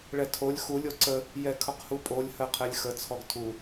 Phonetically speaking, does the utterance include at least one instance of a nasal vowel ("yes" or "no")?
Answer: no